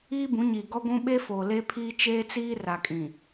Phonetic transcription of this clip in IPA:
iː˦ b ũ˨˦ ɲ iː˨ ɡ ɔ˦ ɡʷ ũ˦ ɓ e˦ f oː˨ l e˦ pʰ iː˦ t͡ʃ eː˦ t͡s iː˦ r a˨ kʼ ĩ˨

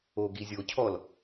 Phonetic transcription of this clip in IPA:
o ɡ i zʲ o cʰ ɔ l

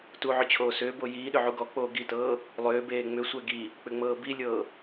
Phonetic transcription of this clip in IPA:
t u ʕ ʏ t͡ɕʰ oː s ʏː b o j iː ɗ ʏ ʕ u ɡ ɔ k͡p oː ɡ i t ɤː | lˠ ʏː b eː ŋ͡m ʏ sʷ ɛ ɡ i | k͡p ʏ ŋ͡m ɤː b i lʲ ɤː

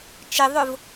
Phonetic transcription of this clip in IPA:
t͡ʃ ɪ ðˤ ʊ v

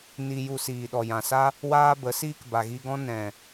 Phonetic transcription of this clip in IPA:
n i˧ j u˧ s iː˨ ɗ ɔ˨ j ã˨ s a˦ | w aː˦ b ə˨˦ s iː˦ k b a˨ ɣ i˧ ɡ ɔ̃˦ n ɛ̃˨

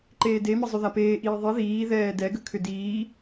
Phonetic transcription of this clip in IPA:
ǃ eː d e m ə zˤ ʏ ð a p eː ʔ iː ðˤ i ð iː ð ɛː d ɛ ɡ ə kʰ ʏ d iː

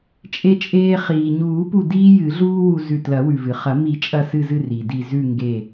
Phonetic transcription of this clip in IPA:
t͡ʃʼ e˧ t͡ʃʼ eː˧ χ iː˩ ɲ uː˨˩˦ p u˧˩ d iː˥ j ɨ˨˩˦ ɮ uː˥ w u˧ z ʉ˧˩ t l ɐ˨˩˦ w ʉ˩ v ɨ˩ χ ɐ˨˩˦ m i˨˩˦ t͡ʃʼ ɐ˧˩ s ɨ˧˩ z ɨ˧˩ r i˩ d i˧˩ z ʉ˥˨ ŋ ɡ e˧˩

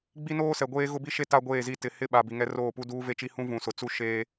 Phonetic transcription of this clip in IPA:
ɡ͡b i˦ n oː˦ s ɛ˨ ɡʷ eː˦ ɣ ʊ˦ b i˦ ʃ e˦ t a˦ ɡʷ eː˦˨ z i˦ t ɪ˨ h ɪ˦ ɓ a˨ b i˨ ŋ ɛ˦ r oː˦˨ p u˦ d uː˦ v e˦ t͡ʃ i˦ h ũ˦ v ũ˨ s ʊ˨ t͡s u˦ ʃ eː˦

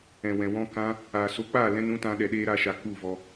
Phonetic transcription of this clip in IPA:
ɛ̃˨ w ɛ̃˨ w ɔ̃˧ k ã˧ | aː˨ s o˧ k͡p a˦˨ l ɛ̃˧ n ũ˦ t ã˦ ɗ ɛ˧ ɗ eː˦ ɾ a˧ ʃ a˨ k u˦˨ v ɔ˧

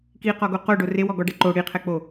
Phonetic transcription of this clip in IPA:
k i q ɔ ɡ o q o ɖ o r e w ɔ ɡ ɔ ɖ ɛ ǃ o ɽ i qʰ ɛ k͡p o

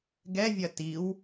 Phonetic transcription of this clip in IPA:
ɡ ɛ vʲ ɐ t i w

